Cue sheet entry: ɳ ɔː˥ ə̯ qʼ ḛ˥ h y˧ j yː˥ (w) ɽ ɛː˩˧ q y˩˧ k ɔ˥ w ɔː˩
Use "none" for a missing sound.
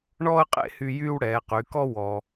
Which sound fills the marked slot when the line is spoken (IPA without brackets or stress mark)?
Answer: w